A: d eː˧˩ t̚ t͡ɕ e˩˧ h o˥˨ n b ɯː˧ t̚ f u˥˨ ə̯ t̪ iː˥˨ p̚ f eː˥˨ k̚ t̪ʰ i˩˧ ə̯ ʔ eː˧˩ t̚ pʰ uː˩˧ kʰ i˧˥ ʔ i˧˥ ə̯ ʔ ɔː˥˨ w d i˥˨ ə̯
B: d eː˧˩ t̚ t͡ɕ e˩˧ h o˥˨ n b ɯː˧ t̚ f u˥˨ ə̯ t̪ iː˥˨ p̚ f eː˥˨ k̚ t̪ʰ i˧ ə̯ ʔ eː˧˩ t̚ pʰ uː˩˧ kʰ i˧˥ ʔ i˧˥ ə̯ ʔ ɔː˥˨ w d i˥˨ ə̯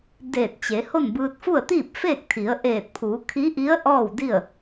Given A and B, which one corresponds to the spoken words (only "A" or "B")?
A